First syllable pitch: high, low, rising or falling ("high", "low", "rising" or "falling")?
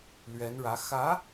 rising